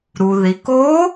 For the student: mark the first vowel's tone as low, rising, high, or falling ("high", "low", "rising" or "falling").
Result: low